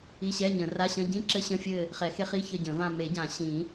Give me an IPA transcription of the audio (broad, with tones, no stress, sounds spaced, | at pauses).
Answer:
i˧˥˧ ɕ ɛ˧˥˧ ɲ ə̃˨˩˦ r a˧˥˧ ɕ ə̃˧˥˧ ɟ ĩ˧˥˧ ǁ ɘ˧˥˧ ɕ ə̃˧˥˧ fʲ ɘ˦˨ | χ ɛ˨˩˦ x e˧˥˧ χ i˧˥˧ ç ə˦˨ ɟ ə̃˨˩˦ v ã˦˨ m e˨˩˦ ɟ ã˨˩˦ ɕ ĩ˨˩˦